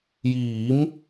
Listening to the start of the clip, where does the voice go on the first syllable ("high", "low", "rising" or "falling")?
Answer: rising